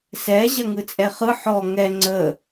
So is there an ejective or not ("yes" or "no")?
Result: yes